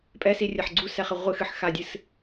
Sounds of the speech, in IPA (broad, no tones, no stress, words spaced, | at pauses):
pʼɛsirʲɐħ ɡ͡ǀusɛχɘ ʁʷɨxɨħxadʲɨs